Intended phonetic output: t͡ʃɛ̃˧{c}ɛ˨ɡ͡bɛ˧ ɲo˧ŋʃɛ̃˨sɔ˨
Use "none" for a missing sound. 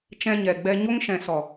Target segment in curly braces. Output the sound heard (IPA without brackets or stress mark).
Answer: ɲ